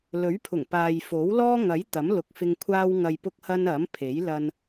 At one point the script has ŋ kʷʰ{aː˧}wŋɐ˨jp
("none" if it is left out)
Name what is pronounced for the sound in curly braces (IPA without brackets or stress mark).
aː˧